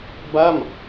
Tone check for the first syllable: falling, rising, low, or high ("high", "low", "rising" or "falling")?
falling